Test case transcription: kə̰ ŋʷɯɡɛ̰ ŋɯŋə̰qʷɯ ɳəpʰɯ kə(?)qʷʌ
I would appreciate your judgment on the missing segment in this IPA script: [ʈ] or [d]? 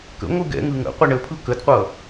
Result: d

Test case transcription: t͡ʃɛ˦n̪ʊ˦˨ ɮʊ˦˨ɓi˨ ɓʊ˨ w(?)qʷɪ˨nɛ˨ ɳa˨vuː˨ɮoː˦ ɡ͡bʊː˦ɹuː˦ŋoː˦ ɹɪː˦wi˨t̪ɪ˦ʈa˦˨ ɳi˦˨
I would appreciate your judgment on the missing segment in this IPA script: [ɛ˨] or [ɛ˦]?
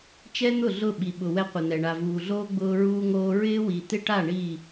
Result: ɛ˦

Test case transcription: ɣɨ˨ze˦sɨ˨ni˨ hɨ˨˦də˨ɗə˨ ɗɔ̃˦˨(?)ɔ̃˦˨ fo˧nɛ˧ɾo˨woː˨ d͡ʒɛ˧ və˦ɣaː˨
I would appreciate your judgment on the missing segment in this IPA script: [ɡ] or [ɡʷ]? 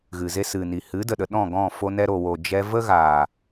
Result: ɡ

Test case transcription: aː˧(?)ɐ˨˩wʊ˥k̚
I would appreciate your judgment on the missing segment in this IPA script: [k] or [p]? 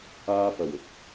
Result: p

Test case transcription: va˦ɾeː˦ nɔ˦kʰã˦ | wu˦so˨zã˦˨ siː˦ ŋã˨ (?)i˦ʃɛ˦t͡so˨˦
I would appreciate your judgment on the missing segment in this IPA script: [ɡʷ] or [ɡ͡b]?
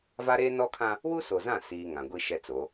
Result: ɡʷ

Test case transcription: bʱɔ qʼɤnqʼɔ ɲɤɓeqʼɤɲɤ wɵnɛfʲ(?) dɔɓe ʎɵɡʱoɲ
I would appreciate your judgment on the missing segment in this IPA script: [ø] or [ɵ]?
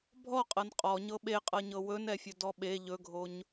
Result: ɵ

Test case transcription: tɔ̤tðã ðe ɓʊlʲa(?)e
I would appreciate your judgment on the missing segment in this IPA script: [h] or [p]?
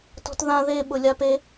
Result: p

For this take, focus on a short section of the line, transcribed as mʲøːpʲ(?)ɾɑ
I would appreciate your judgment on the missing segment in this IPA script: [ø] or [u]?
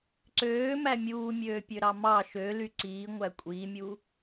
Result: ø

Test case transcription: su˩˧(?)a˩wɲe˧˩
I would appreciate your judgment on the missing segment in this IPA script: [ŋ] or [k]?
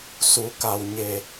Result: k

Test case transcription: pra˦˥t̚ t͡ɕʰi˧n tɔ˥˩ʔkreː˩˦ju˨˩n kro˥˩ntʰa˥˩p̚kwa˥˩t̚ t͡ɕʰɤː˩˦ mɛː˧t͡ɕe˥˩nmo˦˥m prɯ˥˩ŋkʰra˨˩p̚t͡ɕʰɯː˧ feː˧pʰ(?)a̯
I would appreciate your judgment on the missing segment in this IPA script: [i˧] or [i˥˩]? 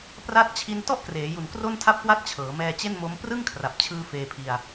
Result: i˧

